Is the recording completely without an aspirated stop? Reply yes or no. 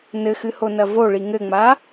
yes